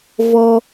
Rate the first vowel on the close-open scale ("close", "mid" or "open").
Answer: mid